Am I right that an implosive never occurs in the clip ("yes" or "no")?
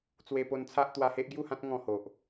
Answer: yes